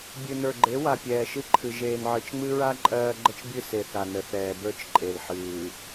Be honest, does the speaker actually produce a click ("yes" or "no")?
yes